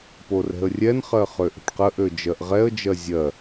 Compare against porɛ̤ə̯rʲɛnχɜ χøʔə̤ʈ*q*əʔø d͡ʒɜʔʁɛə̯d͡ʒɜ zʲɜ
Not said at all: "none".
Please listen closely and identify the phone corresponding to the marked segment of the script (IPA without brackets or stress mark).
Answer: q